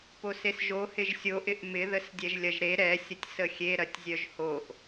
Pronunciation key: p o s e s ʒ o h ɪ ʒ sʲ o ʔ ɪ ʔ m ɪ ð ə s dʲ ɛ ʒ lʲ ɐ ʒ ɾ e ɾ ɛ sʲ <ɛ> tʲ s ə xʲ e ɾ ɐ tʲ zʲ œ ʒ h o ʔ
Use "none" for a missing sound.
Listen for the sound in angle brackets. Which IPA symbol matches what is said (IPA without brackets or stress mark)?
ə